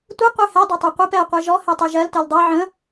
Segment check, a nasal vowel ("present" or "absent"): present